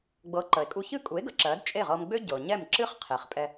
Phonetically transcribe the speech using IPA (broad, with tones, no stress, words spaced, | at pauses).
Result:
ɡ͡bɤ˩˥ ǃə˩e̯kʼu˧ çɨ˥˩kʼu˩˥e̯ɡə˩˥ ǁɜ˩˥d t͡ʃʼe˥˩ʁɤ˧mɡ͡bø˥ ɟɤ˩ ɲɛ˥˩m ǁɨ˥χqʰe˩χ pʼɛ˧